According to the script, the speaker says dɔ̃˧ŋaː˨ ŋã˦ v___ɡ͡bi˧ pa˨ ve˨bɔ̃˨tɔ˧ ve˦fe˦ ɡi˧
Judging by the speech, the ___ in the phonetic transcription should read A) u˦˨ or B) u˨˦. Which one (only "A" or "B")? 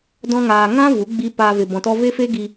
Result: B